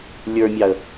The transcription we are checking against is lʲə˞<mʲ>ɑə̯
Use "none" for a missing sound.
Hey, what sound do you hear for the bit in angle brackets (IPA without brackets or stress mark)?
mʲ